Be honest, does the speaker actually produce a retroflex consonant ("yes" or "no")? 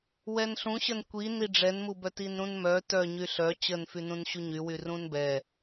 yes